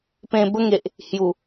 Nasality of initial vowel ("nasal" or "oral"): nasal